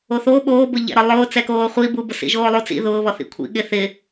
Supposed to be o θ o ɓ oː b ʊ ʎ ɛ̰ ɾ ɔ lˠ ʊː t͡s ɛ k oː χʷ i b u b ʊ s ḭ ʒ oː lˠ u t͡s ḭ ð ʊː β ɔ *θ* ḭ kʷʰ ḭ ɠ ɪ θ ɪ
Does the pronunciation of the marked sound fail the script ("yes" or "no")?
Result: no